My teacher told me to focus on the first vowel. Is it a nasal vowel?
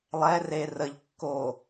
no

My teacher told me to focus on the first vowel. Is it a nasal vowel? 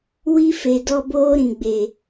no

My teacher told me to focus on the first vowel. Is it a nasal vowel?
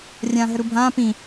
yes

